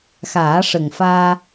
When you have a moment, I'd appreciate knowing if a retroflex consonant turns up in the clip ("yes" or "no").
yes